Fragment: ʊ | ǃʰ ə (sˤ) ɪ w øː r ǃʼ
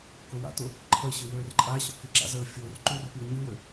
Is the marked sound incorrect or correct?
incorrect